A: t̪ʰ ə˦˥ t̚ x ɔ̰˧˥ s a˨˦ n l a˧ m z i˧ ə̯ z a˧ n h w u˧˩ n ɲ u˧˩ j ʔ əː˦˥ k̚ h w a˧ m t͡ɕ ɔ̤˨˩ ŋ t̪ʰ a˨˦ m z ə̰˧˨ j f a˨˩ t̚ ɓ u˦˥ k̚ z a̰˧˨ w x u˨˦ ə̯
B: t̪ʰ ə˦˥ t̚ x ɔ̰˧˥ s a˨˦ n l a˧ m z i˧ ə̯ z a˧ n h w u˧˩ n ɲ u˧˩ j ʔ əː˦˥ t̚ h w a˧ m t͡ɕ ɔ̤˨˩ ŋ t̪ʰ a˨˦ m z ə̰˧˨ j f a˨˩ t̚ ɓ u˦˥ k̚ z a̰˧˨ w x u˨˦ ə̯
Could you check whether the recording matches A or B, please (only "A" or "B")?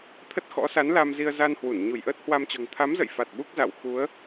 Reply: B